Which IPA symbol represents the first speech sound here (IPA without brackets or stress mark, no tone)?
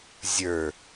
zʲ